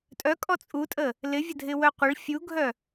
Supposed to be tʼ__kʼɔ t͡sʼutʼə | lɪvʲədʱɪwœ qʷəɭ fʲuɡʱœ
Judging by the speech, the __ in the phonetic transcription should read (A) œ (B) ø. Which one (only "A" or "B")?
A